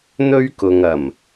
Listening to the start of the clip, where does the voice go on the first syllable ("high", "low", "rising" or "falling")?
high